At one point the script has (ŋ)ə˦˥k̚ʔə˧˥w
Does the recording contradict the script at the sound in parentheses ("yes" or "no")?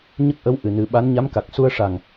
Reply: yes